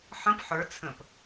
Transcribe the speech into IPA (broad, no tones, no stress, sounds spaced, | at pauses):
ħ ə̃ p ħ ə˞ t͡sʰ ə̃ p